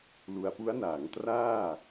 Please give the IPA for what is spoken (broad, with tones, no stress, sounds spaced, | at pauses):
l u˧ a̯ p u˦˥ a̯ n aː˩˦ ŋ t r aː˥˩